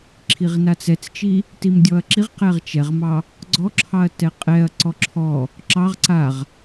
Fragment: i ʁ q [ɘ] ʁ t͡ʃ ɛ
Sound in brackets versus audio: incorrect: ɛ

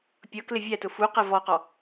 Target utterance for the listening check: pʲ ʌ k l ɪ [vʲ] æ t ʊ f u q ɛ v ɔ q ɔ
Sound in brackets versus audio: correct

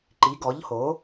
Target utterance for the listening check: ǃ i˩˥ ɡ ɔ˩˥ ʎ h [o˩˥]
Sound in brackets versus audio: correct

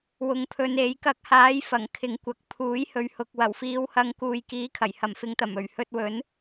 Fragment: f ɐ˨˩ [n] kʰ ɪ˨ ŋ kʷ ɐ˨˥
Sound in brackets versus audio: incorrect: ŋ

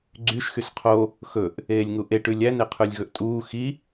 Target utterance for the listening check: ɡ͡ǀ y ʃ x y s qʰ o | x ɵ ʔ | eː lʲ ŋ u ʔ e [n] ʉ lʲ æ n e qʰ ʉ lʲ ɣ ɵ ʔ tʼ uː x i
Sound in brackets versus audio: incorrect: ʈ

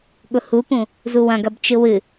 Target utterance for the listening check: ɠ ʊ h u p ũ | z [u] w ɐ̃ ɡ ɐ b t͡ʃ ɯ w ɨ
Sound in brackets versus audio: correct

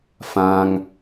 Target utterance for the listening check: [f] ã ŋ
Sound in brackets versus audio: correct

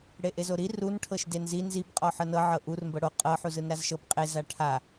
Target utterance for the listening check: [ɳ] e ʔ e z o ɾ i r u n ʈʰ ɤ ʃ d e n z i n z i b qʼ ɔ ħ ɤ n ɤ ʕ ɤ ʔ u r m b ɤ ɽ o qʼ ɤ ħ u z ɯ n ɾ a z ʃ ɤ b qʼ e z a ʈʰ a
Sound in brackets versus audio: incorrect: ɽ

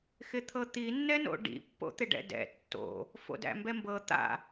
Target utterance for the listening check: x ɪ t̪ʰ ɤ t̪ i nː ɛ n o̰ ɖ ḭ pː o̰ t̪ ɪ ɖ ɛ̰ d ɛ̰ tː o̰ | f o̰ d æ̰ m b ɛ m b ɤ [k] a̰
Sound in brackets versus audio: incorrect: t̪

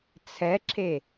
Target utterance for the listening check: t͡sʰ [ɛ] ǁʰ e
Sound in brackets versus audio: correct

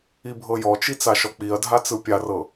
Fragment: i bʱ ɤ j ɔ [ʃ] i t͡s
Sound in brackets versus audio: incorrect: t͡ʃ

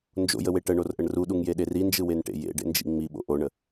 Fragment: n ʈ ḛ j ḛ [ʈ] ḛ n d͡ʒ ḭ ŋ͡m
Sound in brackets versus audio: incorrect: ɖ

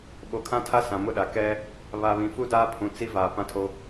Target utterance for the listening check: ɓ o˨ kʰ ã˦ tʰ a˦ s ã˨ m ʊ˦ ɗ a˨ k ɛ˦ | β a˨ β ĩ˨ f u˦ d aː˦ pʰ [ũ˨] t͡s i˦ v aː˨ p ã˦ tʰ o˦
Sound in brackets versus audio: correct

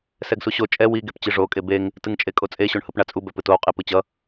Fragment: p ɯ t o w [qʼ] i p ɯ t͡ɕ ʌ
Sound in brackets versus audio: correct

